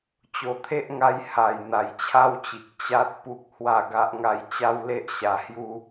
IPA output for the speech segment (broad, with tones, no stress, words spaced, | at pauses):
t͡ɕo˨˩t̪ʰe˦ʔŋa˧j ha˨˩j n̪a˨˩jt͡ɕʰa˦wt͡ɕi˨k̚ t͡ɕa˦t̚pu˦k̚ hwa˥˧ɡa˦ʔŋa˥˧j t͡ɕa˦wle˦ʔ ɕa˧hju˦